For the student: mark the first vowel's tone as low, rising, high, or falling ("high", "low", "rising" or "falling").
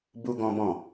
high